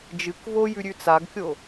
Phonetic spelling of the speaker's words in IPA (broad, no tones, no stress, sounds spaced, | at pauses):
d͡ʒ ɨ k v o j ʉ ɾʲ ʉ t͡s a ɡ kʲ o